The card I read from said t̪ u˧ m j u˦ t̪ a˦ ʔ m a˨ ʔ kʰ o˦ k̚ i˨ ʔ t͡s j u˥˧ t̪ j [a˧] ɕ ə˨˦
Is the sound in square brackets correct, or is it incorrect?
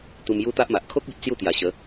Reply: incorrect